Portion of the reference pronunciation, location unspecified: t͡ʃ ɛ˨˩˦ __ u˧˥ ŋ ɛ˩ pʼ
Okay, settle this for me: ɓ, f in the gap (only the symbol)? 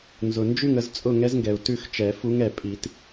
f